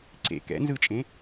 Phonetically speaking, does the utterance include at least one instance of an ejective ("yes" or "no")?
yes